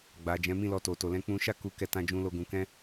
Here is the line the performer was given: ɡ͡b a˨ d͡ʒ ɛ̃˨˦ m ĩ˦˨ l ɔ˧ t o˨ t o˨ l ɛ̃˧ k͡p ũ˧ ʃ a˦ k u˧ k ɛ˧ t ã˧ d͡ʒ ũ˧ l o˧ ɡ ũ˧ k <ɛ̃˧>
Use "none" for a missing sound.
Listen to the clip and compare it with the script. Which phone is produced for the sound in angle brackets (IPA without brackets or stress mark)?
ɛ̃˦